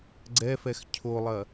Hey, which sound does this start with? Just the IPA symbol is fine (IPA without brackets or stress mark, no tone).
ɡ͡ǀ